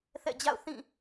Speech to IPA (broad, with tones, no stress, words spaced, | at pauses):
θɛ̰˦˨d͡ʑa̰˦˨ʊ̯θĩ˦˨